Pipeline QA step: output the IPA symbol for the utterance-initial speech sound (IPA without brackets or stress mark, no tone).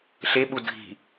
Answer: ɬ